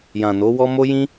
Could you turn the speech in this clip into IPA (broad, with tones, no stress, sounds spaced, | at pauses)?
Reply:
j ã˨ n o˨˦ w ɔ˦ m o˦ j ĩ˦